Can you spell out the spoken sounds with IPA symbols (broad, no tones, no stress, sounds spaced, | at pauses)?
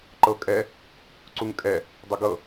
ǃ ɤ kʼ ɛ | ǀ u ŋ kʼ ɛ | dˤ ə ɡ ɤ